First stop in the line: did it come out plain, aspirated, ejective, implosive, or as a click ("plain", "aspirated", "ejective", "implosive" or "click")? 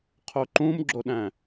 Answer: aspirated